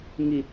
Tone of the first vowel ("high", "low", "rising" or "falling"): low